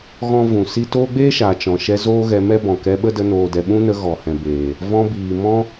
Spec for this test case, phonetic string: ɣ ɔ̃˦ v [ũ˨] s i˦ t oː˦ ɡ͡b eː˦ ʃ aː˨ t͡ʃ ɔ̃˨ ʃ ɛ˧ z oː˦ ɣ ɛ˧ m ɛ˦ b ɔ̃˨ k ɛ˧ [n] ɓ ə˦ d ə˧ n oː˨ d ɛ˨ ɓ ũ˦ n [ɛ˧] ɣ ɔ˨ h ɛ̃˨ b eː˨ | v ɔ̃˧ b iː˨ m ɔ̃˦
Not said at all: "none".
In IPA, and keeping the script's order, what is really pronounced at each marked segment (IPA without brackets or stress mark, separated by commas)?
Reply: ũ˨, none, ə˧